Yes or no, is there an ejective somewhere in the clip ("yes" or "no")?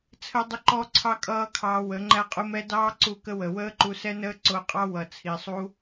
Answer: yes